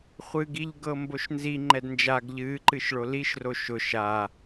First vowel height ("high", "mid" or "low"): high